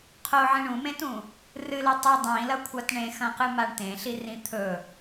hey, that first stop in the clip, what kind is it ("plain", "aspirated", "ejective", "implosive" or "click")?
aspirated